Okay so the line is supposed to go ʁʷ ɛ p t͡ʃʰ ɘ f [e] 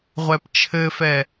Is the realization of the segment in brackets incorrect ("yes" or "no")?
yes